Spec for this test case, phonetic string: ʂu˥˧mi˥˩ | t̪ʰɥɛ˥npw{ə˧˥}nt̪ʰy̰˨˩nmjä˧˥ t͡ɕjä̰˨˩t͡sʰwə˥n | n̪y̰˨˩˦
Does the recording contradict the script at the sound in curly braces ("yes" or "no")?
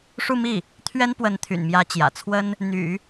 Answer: no